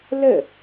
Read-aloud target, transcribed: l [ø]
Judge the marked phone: incorrect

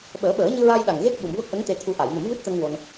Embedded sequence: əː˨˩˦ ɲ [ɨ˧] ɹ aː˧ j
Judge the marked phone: correct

